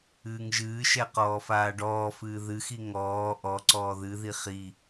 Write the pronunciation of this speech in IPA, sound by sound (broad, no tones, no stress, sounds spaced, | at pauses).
ɨː ŋ ʒ ɨː ʃ ɛ q ɔː f aː ɖ ɔː f ɨː ð ɨ x i ŋ ɔː ʔ ɔ ǀ ɔː ð ɨ ð i χ i